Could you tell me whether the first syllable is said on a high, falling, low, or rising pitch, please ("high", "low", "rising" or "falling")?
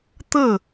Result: falling